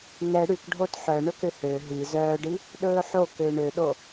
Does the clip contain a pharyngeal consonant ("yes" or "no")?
yes